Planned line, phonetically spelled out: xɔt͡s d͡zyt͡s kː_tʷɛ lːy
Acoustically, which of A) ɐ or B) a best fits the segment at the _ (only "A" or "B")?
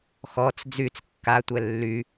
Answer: B